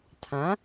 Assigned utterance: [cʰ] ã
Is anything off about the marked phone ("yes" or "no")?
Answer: yes